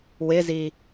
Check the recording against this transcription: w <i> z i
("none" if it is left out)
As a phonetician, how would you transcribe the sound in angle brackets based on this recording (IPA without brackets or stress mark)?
ɪ